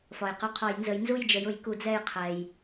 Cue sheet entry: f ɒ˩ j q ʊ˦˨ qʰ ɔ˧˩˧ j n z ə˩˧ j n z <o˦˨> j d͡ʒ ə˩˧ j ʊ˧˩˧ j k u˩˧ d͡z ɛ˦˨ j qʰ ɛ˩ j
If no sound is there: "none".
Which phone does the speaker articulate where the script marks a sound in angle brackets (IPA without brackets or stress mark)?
u˦˨